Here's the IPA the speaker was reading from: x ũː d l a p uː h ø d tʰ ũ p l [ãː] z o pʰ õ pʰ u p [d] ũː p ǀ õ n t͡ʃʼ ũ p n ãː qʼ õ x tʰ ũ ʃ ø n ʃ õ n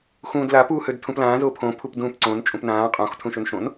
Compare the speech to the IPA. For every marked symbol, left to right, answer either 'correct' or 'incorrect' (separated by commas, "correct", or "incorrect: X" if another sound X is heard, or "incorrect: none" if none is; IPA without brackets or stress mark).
correct, correct